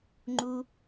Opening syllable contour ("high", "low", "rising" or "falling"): high